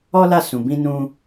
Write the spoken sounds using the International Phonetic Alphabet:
ɔ˦ l a˦˨ s ũ˨ b ĩ˧ n ũ˧

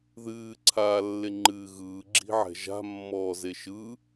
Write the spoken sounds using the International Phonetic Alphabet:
ð ɨː ǀʰ aː lː e ŋ͡ǃ ɨː ɣ ɯː ɡ͡ǁ i̤ ʕ ɛ̤ ʒ a̤ mː ɔː z e ʃ ɯ

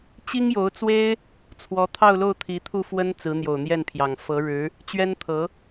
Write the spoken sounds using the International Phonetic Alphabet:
t͡ɕ i˥ ŋ j o˧˥ ʊ̯ t͡s w e˥ ɪ̯ | t͡sʰ w ɔ˧˥ t̪ʰ ɑ˥˧ ʊ̯ l o˥˩ ʊ̯ t̪ʰ i˧˥ t̪ʰ u˥˩ f w ə˥ n t͡s ɹ̩˧˥ n̪ j o˨˩ ʊ̯ n̪ j ɛ˥˩ n pʰ j ɑ˨˩ ŋ f ɤ˧˥ ɻ ɻ̩˧˥ | t͡ɕ ɥ ɛ˥ n t̪ʰ ɤ˧˥

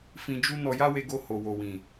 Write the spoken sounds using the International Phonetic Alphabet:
f ĩ˧ d͡ʒ u˦ n ɔ˧ j a˦ w e˧ ɡ o˧ h o˨ w o˨ w ĩ˨

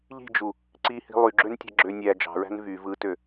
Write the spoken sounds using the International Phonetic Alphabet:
ʎ i̤ d͡ʒ u | ǀ i h i̤ lˠ y ɡ͡ǁ ø n tʲ ɑ̤ ɡ͡ǁ ø nʲ æ d͡ʒ ɑ̤ ɹ æ̤ n v y v ɯ t ø

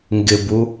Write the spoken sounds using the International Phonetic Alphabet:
ŋ ɡ ɪ b u

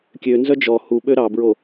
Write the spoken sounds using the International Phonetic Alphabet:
kʲ ø n z œ d͡ʒ ɔ h u ɓ ø ɾ ɑ b ɹ o

